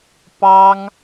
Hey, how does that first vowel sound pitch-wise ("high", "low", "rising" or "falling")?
high